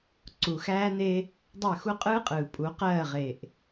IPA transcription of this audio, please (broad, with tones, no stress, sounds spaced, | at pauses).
ǀ u˨ x æː˦ n e˦ | dˤ ɜ˦˨ x u˦ qʼ ɯː˦ qʼ ɯː˨ pʼ u˨˦ q ɜː˦˨ ʁ e˨ ʔ